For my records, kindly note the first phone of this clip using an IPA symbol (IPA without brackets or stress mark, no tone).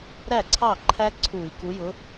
ɾ